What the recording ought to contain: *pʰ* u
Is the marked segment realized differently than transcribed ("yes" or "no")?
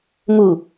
yes